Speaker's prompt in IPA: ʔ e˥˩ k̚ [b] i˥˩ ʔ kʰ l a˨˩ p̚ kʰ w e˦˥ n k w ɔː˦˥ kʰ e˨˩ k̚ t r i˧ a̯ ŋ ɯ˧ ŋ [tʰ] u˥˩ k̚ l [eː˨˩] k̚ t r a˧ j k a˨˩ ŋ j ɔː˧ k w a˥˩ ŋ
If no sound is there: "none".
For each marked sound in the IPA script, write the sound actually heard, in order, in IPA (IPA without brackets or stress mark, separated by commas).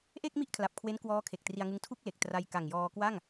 m, tʰ, e˨˩